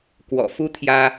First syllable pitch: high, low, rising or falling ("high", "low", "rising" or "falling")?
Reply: low